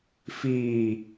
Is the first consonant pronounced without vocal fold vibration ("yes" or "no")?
yes